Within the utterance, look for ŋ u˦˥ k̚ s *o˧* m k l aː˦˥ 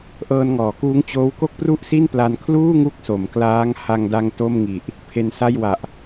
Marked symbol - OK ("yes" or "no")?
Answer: no